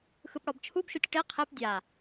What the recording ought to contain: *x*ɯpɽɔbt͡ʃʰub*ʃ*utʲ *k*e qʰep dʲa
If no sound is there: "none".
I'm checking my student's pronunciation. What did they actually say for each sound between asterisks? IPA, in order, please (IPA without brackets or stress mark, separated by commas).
x, ʃ, ʈ